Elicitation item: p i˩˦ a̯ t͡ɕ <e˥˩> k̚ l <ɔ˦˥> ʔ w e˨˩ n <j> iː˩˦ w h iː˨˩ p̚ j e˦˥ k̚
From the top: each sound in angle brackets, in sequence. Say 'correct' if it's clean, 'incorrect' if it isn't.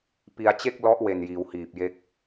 correct, correct, correct

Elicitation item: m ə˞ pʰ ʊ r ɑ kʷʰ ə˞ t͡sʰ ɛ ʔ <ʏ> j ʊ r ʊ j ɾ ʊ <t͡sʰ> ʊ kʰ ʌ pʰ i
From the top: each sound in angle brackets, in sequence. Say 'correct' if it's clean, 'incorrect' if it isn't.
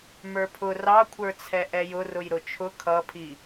incorrect: ɛ, incorrect: t͡ʃʰ

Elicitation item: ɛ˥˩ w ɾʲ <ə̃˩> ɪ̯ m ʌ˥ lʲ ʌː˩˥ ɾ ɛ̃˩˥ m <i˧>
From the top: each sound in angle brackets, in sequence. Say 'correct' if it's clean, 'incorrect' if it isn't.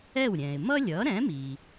incorrect: ɛ̃˩, incorrect: i˩

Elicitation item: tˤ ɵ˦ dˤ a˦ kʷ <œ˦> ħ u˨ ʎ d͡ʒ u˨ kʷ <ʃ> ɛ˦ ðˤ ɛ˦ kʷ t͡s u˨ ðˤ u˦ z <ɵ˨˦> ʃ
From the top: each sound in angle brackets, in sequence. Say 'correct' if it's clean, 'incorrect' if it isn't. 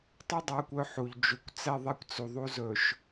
correct, incorrect: t͡s, incorrect: ɵ˨

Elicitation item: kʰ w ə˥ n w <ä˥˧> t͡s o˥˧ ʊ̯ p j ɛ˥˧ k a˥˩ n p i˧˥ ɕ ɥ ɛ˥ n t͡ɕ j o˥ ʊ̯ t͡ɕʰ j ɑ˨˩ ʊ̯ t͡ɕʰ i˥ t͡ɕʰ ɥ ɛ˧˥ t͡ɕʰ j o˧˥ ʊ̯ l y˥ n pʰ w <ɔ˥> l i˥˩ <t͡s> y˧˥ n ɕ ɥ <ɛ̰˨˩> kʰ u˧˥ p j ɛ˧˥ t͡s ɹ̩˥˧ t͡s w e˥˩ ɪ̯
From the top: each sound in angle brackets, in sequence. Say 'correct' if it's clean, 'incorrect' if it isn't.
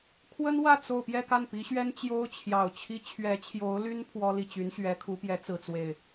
correct, correct, incorrect: t͡ɕ, incorrect: ɛ˧˥

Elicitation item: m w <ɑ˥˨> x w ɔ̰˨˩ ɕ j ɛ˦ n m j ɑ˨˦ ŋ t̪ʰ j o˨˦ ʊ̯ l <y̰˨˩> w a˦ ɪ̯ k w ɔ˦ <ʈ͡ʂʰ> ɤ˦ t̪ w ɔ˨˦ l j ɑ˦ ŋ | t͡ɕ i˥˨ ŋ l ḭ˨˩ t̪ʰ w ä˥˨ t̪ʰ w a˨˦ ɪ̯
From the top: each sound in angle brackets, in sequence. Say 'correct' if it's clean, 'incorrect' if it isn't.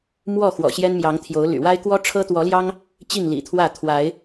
incorrect: ɔ˥˨, correct, correct

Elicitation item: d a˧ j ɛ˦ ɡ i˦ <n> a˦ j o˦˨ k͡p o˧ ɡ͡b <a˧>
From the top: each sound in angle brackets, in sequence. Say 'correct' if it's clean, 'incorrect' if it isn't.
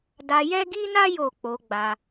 correct, correct

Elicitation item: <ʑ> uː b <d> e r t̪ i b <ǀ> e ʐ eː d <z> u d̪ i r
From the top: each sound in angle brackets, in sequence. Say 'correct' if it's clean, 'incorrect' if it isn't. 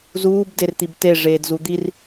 incorrect: z, correct, incorrect: t, correct

